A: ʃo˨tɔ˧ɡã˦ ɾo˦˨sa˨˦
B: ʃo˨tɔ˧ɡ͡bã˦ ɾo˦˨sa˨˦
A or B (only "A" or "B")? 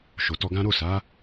A